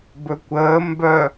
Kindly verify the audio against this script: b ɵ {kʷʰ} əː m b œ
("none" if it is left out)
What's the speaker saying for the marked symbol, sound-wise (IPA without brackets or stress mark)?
kʷ